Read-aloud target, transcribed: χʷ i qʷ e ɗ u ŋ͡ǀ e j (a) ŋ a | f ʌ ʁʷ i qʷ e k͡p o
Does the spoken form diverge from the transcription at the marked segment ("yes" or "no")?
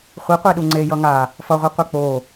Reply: yes